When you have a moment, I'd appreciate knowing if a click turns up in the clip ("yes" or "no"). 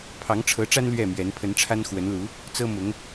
no